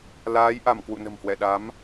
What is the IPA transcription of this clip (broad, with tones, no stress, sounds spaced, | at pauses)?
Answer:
l aː˨˦ j ʔ a˧˩ m k w ṵ˧˨ n ə̤˨˩ m h w ɛ˧˩ ɗ a˨˦ m